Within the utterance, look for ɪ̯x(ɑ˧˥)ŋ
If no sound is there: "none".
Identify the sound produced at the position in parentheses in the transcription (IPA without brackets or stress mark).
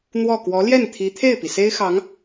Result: ɑ˧˥